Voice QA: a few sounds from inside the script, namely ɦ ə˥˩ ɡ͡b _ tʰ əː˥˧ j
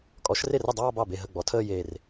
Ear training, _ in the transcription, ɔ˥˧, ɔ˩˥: ɔ˩˥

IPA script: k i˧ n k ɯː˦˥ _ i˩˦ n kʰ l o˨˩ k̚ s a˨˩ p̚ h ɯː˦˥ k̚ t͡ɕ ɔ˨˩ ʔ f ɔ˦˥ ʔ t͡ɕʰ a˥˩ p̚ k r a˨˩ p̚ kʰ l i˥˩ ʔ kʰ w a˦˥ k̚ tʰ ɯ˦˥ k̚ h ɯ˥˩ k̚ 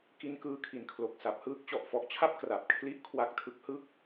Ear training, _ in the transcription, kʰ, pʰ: kʰ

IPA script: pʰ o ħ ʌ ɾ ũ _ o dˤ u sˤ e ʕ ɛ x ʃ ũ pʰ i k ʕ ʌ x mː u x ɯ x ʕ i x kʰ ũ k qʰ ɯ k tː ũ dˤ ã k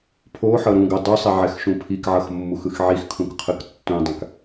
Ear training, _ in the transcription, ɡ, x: ɡ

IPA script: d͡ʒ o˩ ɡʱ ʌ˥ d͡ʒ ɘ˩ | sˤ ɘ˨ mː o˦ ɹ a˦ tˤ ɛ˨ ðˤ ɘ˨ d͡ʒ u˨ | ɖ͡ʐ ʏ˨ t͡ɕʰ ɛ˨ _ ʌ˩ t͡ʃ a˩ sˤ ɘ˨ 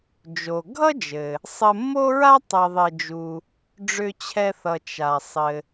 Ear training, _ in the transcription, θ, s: θ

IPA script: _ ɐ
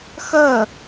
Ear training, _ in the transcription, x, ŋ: x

